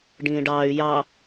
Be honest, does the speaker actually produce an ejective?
no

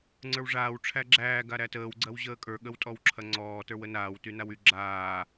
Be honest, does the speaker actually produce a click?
yes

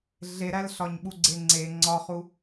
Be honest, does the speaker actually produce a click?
yes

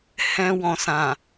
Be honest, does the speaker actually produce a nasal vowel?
yes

